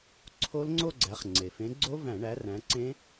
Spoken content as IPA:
ǀʰ o˦˥ l ŋ͡ǀ o˥˧ ɡ͡ǀ æ˨˦ χ ŋ͡ǀ e˩ f ẽ˨˦ ɡ͡ǀ o˦˥ v æ̃˧˩˧ ɳ æ˨˦ r æ̃˨˦ ǀ ẽ˦˥

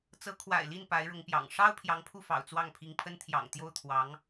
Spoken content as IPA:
t͡s ɤ˧˥ kʰ w a̰˨˩ ɪ̯ l i˥˩ n p a˧˥ ɪ̯ ɻ ʊ˧˥ ŋ p j ɑ̰˨˩ ŋ ʂ ɑ˥ ʊ̯ pʰ j ɑ˧˥ ŋ pʰ u˥˩ f ɑ̰˨˩ ʊ̯ t͡s w ɑ˥˩ ŋ pʰ i˧˥ ŋ pʰ ə˥ n t̪ʰ j ɑ̰˨˩ ŋ t̪ j o˥˩ ʊ̯ t̪ʰ w ɑ˧˥ ŋ

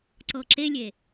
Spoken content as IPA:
ǀ ɤ ǁ e lʲ e

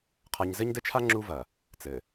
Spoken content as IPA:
qʰ a˨ ɲ z ɘ˦ ɲ d ɘ˦ t͡ʃʰ a˦ ŋ͡ǁ u˦ v ɐ˨ | t͡s ɘ˨

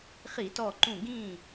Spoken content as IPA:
χ i˧˩˧ t ɔ˧˩ ǃ ũ˧˩ ɡ ĩ˧˩

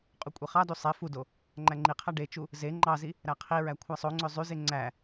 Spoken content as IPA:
qʼ u kʷʼ e χ ɑ d u sˤ e f u d o | ŋ͡ǃ æ ŋ͡ǃ i qʰ æ ɖ e t͡ʃ u | z e ŋ͡ǃ ɑ z i | ɾ æ qʰ i ɹ æ kʷʰ æ sˤ o ŋ͡ǀ ø zˤ y z e ŋ͡ǀ æ

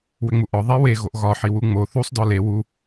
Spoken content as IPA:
w ʏ ŋ͡m u ʔ ɒ ðˤ e w e ɣ o ʔ ɣ ɒ ħ i w u ŋ͡m o θ u sˤ d ɒ l e w u

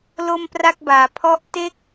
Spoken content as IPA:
l o˥˩ m p r a˥˩ k̚ b aː˩˦ pʰ ɔ˦˥ ʔ t e˥˩ k̚

